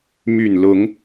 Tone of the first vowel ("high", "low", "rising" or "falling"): low